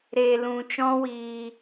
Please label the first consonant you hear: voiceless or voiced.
voiced